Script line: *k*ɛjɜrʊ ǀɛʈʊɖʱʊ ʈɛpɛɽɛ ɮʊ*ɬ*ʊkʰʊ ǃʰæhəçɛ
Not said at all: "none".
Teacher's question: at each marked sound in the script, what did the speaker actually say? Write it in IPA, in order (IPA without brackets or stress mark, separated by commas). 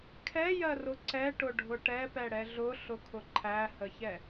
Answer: kʰ, ɬ